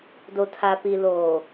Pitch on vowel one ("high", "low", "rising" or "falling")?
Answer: low